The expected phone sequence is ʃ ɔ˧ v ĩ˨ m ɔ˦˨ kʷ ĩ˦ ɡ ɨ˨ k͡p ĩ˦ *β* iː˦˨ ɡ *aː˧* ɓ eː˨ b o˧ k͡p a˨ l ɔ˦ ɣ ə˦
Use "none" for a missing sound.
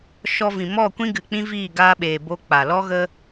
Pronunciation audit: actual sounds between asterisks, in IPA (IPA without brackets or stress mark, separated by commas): v, aː˧